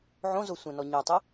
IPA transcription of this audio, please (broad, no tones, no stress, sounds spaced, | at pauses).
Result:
ʕ õ z o sʷ ɛ̃ n ɔ ɲ o tˤ ɘ